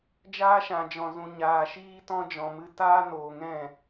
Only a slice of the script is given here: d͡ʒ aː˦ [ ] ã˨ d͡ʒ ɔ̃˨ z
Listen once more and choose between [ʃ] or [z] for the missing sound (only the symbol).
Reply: ʃ